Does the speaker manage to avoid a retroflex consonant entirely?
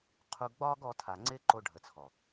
no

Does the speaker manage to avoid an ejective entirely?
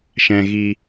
yes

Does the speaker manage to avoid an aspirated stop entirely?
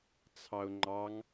no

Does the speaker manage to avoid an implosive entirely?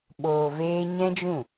no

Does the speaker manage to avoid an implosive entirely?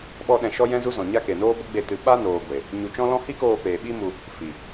no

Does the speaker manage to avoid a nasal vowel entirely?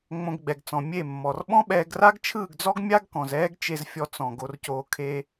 no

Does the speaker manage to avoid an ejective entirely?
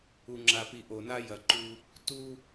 yes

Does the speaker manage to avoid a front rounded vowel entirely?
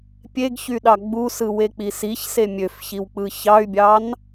no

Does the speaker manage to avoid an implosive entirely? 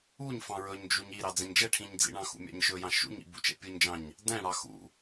yes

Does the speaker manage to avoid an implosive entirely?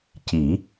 yes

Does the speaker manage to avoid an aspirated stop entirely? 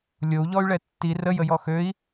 yes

